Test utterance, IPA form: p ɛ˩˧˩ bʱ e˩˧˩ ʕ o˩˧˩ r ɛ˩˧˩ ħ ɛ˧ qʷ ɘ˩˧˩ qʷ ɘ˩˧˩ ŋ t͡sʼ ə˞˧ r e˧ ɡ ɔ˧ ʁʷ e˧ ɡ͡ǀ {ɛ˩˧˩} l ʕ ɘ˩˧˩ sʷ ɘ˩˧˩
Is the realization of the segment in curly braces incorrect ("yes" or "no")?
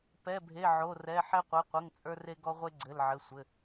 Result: yes